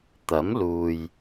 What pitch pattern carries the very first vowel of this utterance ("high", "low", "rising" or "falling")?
rising